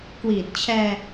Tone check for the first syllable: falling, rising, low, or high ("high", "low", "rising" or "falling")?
low